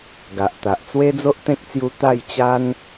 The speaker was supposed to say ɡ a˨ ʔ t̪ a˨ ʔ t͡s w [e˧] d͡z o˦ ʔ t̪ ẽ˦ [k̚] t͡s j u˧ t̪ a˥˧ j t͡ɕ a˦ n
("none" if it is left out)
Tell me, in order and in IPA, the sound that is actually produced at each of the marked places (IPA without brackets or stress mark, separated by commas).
e˦, k̚